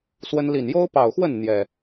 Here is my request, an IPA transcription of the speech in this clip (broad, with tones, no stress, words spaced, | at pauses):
swə˦n li˨˩njo˦ʊ̯pɑ˨˩ʊ̯xwə˥˨n n̪jɛ˨˩